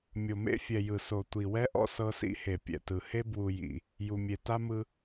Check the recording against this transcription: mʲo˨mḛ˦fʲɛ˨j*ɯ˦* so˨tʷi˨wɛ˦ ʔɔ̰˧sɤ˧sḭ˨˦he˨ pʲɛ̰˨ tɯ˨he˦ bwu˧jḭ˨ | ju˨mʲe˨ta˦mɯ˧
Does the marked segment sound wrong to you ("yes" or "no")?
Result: yes